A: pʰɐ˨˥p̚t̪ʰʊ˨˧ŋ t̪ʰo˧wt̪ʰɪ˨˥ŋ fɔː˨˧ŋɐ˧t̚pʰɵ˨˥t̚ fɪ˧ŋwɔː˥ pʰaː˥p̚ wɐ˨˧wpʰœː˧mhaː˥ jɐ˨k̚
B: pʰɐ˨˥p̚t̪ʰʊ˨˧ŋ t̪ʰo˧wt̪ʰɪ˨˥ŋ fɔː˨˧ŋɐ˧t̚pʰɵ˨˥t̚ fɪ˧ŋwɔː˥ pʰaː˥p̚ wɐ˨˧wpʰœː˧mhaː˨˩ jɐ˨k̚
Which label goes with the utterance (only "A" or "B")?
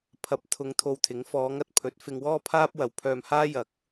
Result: A